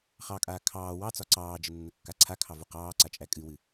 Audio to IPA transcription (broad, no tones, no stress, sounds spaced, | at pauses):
χ ɑ kʼ aː kʰ ɑː w ɑ t͡s ɒ ǀ ɑː d͡ʒ ə nː ə kː a ǀʰ a kʰ ɑ v u q ɑː ǀ a t͡ʃʼ æ kʼ ɨ w ɨ